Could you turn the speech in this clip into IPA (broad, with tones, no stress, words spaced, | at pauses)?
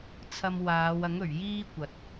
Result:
t͡sʰɐ˧mwaː˨˧w ɐ˨˥ŋɵ˨˩ɥ jiː˥kʷɐ˨t̚